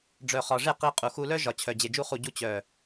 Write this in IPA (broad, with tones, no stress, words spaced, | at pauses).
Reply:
ɖ͡ʐœ˨χɒ˨ʐe˦˨ qi˧qʼu˨xu˧lœ˦ ʒɒ˨t͡ɕʰœ˨ d͡ʑe˨d͡ʒu˧χu˨ɟu˧ t͡ɕœ˨